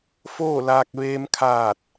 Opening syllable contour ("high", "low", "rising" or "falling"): falling